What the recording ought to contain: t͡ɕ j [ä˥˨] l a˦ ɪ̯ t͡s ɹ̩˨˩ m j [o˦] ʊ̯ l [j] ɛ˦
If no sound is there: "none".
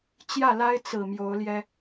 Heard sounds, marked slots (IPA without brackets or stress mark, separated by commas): ä˥˨, o˨˦, j